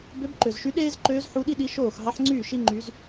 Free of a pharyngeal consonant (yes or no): no